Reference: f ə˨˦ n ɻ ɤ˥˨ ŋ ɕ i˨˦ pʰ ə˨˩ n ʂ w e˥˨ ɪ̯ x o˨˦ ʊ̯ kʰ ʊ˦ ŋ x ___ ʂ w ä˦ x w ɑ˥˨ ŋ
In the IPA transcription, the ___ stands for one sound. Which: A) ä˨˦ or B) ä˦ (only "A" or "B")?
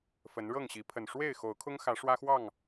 A